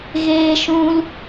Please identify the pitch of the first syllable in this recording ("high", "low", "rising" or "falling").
high